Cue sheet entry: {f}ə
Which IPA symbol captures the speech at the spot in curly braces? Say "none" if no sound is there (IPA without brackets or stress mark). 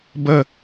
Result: b